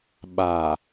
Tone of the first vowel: low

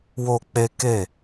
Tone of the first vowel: high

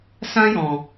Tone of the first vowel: high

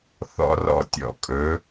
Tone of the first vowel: high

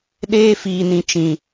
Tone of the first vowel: high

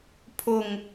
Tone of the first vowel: low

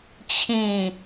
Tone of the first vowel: falling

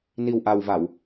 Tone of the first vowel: low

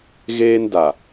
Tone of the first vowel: high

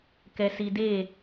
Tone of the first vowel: low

